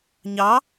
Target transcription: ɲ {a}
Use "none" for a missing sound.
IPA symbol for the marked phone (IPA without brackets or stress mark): ɑ